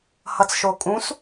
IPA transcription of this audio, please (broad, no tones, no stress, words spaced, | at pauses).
hʌt͡sʃokʼũs